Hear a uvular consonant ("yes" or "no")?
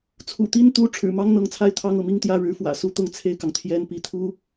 no